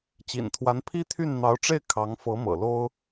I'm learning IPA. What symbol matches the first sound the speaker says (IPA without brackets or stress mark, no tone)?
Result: t͡ɕ